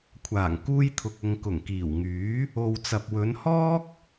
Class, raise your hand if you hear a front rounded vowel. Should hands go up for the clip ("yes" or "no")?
yes